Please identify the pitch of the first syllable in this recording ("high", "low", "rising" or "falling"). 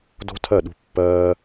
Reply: high